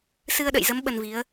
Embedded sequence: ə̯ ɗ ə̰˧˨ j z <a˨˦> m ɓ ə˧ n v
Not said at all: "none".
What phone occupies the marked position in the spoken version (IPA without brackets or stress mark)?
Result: ə˨˦